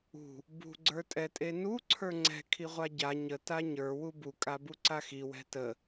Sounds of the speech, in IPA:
ṳ | b ṳ ɡ͡ǀ ə˞ tʼ ɛ tʼ e n u ǀʰ ə˞ ŋ͡ǀ ɛ̤ kʰ i ʁʷ a ɟ a ɲ ə t a ɲ ə˞ w u b u kʼ a b u ǀ a x i w ɛ̤ t ə

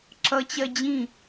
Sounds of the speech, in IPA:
ǁ ʌ t͡ɕ ɜ d͡ʑ ĩ

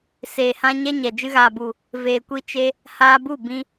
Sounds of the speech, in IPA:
s eː˨ h ã˦ ɲ ɛ˦ ɲ ɛ˨ d͡ʒ ɨ˧ ɣ aː˨ b u˨ | v eː˨ kʷ i˧ t͡ʃ e˦ | h aː˧ b u˦˨ b ĩ˧

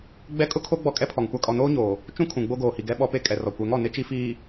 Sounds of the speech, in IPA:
ɡ͡b ɛ˦ kʼ ʊ˦ kʰ o˦ ɡ͡b ɔ˦ kʼ ɛ˦ pʰ ɔ˨ ŋ kʷ a˦ kʼ ɔ˨ n oː˦ ɲ oː˨ | t͡ʃ ũ˦ kʰ ũ˨ ɡ͡b o˦ ɡ oː˨ h i˨ ɡ ɛ˦ ɓ ɔ˦ p e˦ kʼ ɛ˨ r ɔ˨ kʷ ɛ˨˦ ŋ ɔ˨ n ɪ˦ t͡ʃ i˦ f iː˨

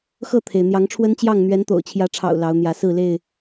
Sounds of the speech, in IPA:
x ɤ˥˨ t̪ʰ e˩ ɪ̯ n̪ j ɑ˨˦ ŋ ʈ͡ʂʰ w ə˦ n t͡ɕ j ɑ˥˨ ŋ n̪ ɥ ɛ˨˦ n t̪ o̰˨˩ ʊ̯ t͡ɕʰ j ä˨˦ ʈ͡ʂʰ ɑ̰˨˩ ʊ̯ l ɑ˨˦ ʊ̯ n̪ j ä˨˦ s ɹ̩˥˨ l e˥˨ ɪ̯

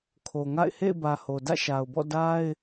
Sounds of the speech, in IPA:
kʰ o˨ ŋ a̰˦˨ ɪ̯ h ḛ˦˨ ɪ̯ b ä˨ h o˨ d ä̰˦˨ ʃ a˨ ʊ̯ b ɔ̰˦˨ d a˦ ɪ̯

